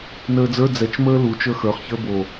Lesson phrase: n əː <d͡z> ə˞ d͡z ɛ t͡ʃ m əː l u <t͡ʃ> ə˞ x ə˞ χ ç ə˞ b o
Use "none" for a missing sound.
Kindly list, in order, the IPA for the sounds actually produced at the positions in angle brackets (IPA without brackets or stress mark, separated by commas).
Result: d͡z, t͡ʃ